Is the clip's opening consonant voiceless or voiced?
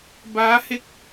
voiced